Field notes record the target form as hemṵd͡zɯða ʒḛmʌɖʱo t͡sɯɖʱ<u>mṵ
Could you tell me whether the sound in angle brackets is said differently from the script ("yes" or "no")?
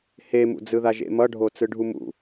no